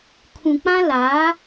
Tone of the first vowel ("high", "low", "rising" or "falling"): low